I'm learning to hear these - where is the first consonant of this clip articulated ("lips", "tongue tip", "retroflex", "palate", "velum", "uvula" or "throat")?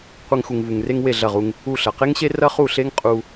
uvula